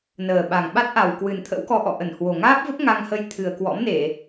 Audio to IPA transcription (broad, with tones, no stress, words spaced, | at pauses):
nəː˨˩ɓa˨˩ŋ ɓa˦˥t̚ʔa˨˩wkwɨ˨˩nt̪ʰə̰˧˥w kɔ˧ʔɔ̰˧˨ʔə˧˩nhwo˨˩ ŋaː˦˥p̚və˦˥p̚ ŋa˧ŋhə˧j t̪ʰɨ˨˩ə̯kwɔ̰˧˥mne˧˩˨